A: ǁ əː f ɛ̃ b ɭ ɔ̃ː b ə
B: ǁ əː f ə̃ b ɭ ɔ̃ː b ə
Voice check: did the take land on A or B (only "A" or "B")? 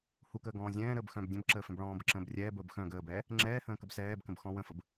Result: A